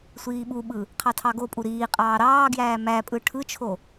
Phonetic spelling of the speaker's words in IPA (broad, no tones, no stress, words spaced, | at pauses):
sʷiːɓuɓɯ | qʰɑtʰɑɡopʼu ɾiːqʼɑː ɾɑːɡjæː mæ pʼɯʈʰɯt͡ʃʰo